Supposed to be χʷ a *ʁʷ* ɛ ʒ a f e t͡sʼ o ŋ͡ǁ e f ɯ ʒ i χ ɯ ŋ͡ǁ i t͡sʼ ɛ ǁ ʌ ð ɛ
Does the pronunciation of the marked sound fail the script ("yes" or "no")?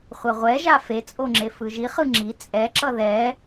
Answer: no